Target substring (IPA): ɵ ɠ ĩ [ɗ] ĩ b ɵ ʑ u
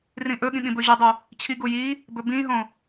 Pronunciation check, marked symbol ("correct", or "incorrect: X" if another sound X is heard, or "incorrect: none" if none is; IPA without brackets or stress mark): incorrect: ɠ